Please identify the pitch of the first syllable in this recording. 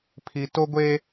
low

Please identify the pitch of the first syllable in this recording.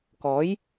rising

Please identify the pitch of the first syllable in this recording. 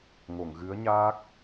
low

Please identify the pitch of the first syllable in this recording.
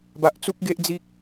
low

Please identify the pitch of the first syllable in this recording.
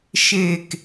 falling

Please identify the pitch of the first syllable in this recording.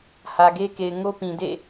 low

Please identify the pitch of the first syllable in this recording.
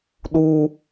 high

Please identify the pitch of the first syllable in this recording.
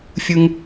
high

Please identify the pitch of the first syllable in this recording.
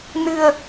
low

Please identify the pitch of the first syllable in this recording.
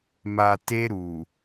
low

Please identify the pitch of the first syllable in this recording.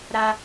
high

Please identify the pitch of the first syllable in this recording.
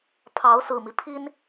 rising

